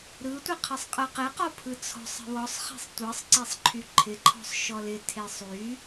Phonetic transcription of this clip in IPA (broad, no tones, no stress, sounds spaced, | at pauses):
ɾ ɯ tʷ ɨ qʰ ə sˤ qʼ ɯ q ɪ q ɔ pʰ ɯ t͡sʰ ɔ̤ sˤ ə̤ w ɔ sˤ χ e̤ sˤ tʷ ɯ sˤ ǀ e sˤ ǃʰ y ǃʰ ɪ ǃʰ ɔ̤ sˤ ʃ ɔ l ɪ tʰ e sˤ y